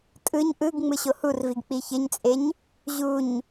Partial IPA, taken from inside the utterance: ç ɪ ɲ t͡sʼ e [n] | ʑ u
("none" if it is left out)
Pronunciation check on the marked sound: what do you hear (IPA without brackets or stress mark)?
ɲ